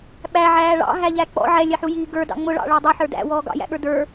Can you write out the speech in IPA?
ɓ æ ʕ æː ɭ ɑ̰ ɦ æ ʎ æ k͡p ɔ̰ ʕ ɛ lʲ ɛ ħ u j iː ɡ ə˞ d ɑ̰ ŋ͡m ʊ ɭ ɑ̰ ɭ æ dˤ u ħ ə˞ d æ̰ w ɔː ɡ ɑ̰ j æ̰ ɠ ə˞ d ə˞

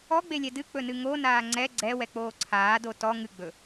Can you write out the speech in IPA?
ɔ ɡ͡b e lʲ ɛ d ɨ k͡p ɵ n ɨ ŋ o n aː ŋ͡ǀ ɛ ɡ͡ǀ ɛ w ɛ k͡p oː ǀʰ aː d o t ɔ ŋ ɨ ɡ͡b ɵ

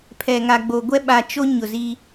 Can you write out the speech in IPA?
pʰ ɛ˨ ŋ a˨ ɡ͡b o˨ ɡʷ ɛ˦ ɓ a˨ t͡ʃ o˦ ɲ ʊ˨ z i˦

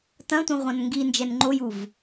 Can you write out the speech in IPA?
t ɐ̃ tʷ ẽ ʁʷ ã n ŋ ɡ i n d͡ʒ ɛ n ŋ͡ǃ o j u v

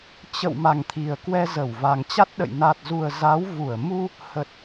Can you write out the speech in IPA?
t͡ɕ ə̰˧˨ w m a˨˩ ŋ t̪ʰ i˨˩ ə̯ k w ɛ˧ z ə˧˩ w v a˨˩ ŋ t͡ɕ a˦˥ t̚ ɗ ə̰˧˨ j n a˨˩ t̚ z u˨˩ ə̯ z a˨˦ w v u˧˩ ə̯ m u˧ | h ə˨˩ t̚

